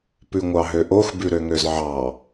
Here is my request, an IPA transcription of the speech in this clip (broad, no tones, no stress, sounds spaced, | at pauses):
p ʉ ŋʷ ɑ ɦ ø ʔ o x b ʉ ɾ ø ŋ ø z ʕ ɑ